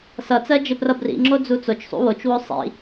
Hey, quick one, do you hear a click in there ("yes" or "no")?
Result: yes